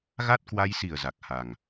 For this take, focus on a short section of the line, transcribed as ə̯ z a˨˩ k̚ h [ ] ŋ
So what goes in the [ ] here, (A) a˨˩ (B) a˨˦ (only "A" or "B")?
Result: A